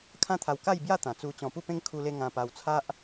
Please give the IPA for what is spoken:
kʰã˦t̪ʰa˧wka˥˧j bja˥˧t̪ã˨˩ t͡su˧ t͡ɕɔ̃˧pu˥˧pẽ˦ŋ kʰu˧le˧ ŋã˧pa˧w t͡sʰa˦ʔ

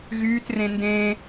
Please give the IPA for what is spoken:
ɣyːtrẽ ndẽ

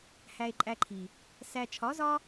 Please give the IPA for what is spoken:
hæ˧e̯ǃʼæ˧ǃʰi˨ | sæ˨ t͡ʃʰɒ˨˦zɒ˦

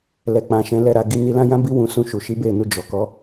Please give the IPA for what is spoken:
lɛ˧k͡pã˧ ʃɛ̃˧ lɛ˦ɾa˧ɡi˦ ni˧lã˦jã˦bi˦ wũ˧sũ˧ ʃu˨ʃi˨˦be˦˨ nu˧ d͡ʒɔ˨ kɔ˨˦

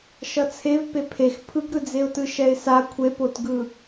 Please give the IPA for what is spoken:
ʃʌt͡sʰev pepʰex pʰɯɡɾɯd͡zeʊ̯tɯ ʃɛɪ̯sa kʷʰepotɡɯ

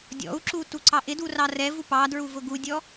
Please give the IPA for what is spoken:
dʲɔ̰u̯ǁu tuǀɑʔɪdu rɑrɛvu pɑdɹu vʊɡudʲɔ

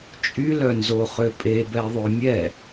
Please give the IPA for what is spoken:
t͡ʃʼylœnzoχø pʼebɛðˤø mʲɛ

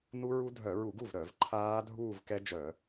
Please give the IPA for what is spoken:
nu˦˥ɹu˦˥ dʱœ˧˩˧ɹu˧˩˧ɡu˥˩v ɾœ˧˩˧vǃʰaː˦˥ dʱuː˥˧vkɛ˦˥d͡ʒœ˧˩˧

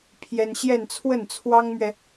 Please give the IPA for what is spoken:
pʰjɛ˥n ɕjɛ˥˧nt͡sʰwə˥˩nt͡sʰwɑ˥ŋmɥɛ˨

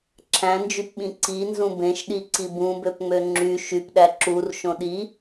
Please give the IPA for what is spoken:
ǁʰæ̃nd͡ʒypɓĩ ǀinzũ bẽʃɗiǀi bũbøpŋ͡mø ŋ͡ǁy ʃypɗæ ǁur ʃõɗi

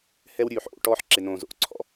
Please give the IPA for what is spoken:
hɛ˦wɾʲʉː˨ħʔo̰˧ ʈɔː˦ħǁɪ˨nõː˨zo̰˨ʔ ǀʰɔ̰˧

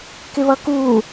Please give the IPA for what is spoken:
kɪβʌku

